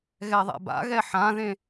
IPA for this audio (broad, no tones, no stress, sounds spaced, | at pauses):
ɣ ɛ ðˤ ɛ̰ b a̰ ɣ ɛ ħ ã ð ẽ